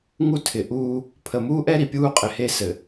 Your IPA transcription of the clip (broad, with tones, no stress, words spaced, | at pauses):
ŋu˦tʰɪ˨ʔuː˦ | pʰə˨muː˦ʔɛ˦ ɾi˨pʲuː˦qʼɪ˨he˦ sɘ˨